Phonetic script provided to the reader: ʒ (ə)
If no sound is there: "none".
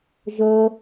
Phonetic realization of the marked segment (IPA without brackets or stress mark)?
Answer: ə